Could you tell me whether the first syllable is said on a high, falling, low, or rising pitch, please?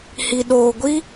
low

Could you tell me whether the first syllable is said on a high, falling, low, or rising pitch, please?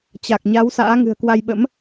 low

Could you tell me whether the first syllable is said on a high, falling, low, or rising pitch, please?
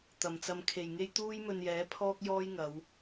low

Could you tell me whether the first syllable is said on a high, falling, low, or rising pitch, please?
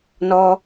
high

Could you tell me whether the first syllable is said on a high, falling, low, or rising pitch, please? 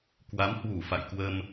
rising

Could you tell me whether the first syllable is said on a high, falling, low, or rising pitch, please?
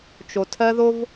low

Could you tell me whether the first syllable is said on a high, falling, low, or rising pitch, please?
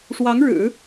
rising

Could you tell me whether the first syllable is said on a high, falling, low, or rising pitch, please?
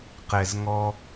low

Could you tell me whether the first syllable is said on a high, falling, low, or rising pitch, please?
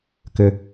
low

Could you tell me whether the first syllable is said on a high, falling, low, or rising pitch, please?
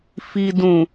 low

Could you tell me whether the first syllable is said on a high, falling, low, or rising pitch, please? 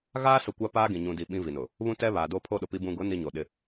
high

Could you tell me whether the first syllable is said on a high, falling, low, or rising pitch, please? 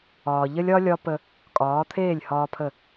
low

